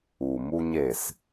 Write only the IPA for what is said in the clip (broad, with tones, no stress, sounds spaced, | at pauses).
u˨ m u˦ ɲ e˨ s